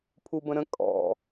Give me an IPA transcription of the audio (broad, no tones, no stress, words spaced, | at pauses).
pʰubə̃ɾə̃ kʼɔ̰